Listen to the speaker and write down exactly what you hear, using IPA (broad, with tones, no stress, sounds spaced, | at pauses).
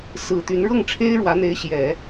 s ɹ̩˨˩ t̪ y˧˥ n ɻ ɤ˥˩ ŋ ʈ͡ʂʰ e˥ ɪ̯ ɻ w ä˧˥ n̪ e˧˥ ɪ̯ ɕ j ɛ˨˩˦